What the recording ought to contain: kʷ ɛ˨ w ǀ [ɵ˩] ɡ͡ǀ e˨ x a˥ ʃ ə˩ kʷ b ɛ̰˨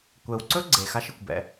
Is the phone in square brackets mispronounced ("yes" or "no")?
yes